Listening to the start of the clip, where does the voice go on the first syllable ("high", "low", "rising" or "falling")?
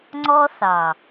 high